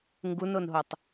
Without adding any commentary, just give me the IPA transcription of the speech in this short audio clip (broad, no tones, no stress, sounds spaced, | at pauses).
ŋ ɡ u n o n ɦ o tˤ